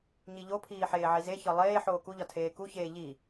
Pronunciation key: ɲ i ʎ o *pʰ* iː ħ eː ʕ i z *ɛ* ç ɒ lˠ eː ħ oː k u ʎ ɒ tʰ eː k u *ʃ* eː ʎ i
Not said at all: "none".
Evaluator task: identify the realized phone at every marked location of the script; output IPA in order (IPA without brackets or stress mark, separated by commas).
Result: pʰ, e, ç